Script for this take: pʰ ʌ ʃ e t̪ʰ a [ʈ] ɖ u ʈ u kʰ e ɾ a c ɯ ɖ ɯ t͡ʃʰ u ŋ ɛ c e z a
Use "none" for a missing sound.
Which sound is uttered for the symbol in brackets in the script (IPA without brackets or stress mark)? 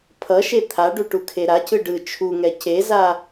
none